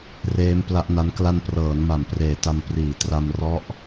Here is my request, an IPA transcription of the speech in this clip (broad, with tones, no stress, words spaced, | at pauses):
reː˦˥mpla˦˥ʔna˦˥n kla˧nprɤː˩˦nma˩˦mpreː˨˩ ta˧m priː˩˦tra˧mrɔ˦˥ʔ